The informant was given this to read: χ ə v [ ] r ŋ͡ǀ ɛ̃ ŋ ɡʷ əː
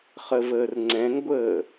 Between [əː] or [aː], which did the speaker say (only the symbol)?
əː